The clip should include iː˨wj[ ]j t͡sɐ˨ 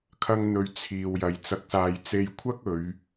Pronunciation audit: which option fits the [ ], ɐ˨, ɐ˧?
ɐ˨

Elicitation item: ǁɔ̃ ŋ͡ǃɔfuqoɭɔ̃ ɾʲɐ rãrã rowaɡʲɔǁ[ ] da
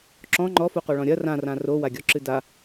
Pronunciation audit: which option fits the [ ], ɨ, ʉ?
ɨ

